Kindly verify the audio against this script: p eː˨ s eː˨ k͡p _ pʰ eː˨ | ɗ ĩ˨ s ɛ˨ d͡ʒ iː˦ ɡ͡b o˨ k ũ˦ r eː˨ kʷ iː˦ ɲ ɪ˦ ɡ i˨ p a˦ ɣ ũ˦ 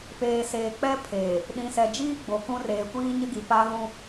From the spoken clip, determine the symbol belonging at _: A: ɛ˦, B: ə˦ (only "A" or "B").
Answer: A